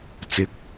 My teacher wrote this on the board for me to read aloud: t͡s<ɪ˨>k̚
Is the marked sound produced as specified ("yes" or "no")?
no